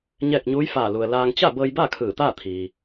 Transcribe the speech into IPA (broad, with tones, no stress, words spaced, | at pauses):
ɲɛː˥˨k̚ ɲuː˧˥j faː˧˩lu˩ə̯ laː˧ŋ t͡ɕa˥˨bɤː˧jba˥˨ kʰɯː˧˩t̪aː˥˨ t̪ʰiː˩